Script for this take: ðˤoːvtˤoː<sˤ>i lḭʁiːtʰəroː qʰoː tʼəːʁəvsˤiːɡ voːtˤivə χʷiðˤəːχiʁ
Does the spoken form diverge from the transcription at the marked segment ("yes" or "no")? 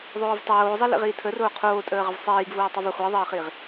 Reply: yes